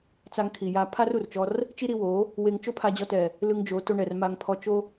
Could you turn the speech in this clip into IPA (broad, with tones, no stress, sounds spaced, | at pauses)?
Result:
t͡s a˧ ŋ kʰ i˨ j a˧ pʰ a˦ r u˨ r t͡ʃ ɔ˧ r | t͡ʃ i˦ ɾ i˧ w o˨˦ | w e˧ ŋ t͡ʃ o˦ pʰ a˧ d͡ʑ ɔ˧ t ɛ˨ | l ɯ˧ ŋ d͡ʒ o˨˦ t o˧ ɳ ɛ˨ r m a˧ ŋ pʰ ɔ˧ t͡ʃ o˧